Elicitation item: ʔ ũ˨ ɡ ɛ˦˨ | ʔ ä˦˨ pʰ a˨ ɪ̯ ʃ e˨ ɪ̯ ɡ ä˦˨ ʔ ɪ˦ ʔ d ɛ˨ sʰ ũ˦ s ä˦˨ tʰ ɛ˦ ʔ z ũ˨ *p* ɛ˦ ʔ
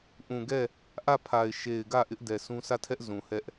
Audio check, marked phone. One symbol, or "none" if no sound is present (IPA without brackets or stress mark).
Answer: h